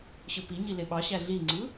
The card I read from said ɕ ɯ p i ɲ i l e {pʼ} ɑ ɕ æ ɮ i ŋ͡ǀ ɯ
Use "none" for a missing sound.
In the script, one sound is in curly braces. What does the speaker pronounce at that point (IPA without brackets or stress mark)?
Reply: ɓ